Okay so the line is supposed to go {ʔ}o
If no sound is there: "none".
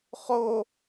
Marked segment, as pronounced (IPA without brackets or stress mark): χ